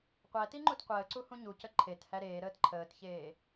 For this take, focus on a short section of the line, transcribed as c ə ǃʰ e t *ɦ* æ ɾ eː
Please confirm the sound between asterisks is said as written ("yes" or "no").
no